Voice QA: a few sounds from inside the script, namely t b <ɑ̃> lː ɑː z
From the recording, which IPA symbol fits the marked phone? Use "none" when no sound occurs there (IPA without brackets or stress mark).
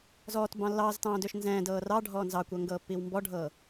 ɑ̃